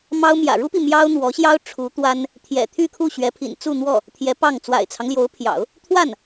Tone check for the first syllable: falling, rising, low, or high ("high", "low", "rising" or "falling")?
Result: high